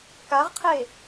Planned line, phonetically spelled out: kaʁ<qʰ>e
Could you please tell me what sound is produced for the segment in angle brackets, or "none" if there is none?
qʰ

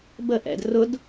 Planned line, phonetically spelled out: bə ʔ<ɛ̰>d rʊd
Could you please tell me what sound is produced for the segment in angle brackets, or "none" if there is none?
ɛ̰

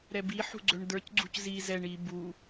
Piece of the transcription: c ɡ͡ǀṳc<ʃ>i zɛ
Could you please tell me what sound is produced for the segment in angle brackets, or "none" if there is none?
z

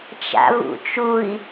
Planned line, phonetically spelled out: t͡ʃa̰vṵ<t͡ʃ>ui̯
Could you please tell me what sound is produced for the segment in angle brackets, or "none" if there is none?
t͡ʃ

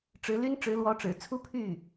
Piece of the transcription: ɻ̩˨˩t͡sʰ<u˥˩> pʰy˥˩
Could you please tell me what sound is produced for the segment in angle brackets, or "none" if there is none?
u˥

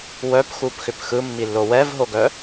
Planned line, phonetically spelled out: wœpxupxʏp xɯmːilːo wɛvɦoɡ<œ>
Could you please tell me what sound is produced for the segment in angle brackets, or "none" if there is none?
œ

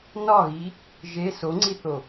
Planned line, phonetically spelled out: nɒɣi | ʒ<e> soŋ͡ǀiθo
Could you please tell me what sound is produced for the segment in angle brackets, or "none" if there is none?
e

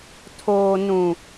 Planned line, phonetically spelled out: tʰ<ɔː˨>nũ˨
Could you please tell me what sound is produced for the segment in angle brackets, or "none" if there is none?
oː˨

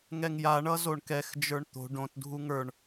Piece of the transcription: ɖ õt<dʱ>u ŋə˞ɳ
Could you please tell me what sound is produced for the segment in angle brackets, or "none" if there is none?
dʱ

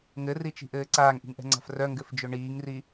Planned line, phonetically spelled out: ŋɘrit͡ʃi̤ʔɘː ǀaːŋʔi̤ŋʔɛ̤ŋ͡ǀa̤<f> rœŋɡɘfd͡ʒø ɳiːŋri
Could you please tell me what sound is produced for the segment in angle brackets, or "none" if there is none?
f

